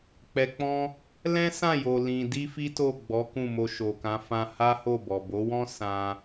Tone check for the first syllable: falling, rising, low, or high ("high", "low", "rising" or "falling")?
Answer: low